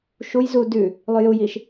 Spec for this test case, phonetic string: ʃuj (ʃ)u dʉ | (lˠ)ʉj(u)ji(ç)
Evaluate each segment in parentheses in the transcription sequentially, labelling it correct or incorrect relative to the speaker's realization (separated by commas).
incorrect, correct, correct, incorrect